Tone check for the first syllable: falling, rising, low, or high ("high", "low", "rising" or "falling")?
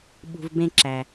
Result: low